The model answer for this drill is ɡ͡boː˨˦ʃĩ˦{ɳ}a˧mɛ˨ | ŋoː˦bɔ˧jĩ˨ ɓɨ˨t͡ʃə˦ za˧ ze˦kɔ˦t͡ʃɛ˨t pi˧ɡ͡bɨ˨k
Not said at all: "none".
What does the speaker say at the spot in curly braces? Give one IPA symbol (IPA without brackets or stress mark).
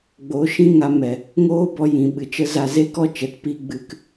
ŋ